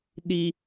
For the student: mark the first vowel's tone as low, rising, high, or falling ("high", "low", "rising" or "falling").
high